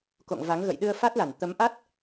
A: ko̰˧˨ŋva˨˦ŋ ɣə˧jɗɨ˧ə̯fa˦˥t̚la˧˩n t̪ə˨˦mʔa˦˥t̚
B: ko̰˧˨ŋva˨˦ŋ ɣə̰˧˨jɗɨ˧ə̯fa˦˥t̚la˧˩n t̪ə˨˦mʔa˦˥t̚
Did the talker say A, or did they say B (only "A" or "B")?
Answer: B